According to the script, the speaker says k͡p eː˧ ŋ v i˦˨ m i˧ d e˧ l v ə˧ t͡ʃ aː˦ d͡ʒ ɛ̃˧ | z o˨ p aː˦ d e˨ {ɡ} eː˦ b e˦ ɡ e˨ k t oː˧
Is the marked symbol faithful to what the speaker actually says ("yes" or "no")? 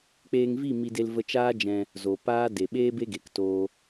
no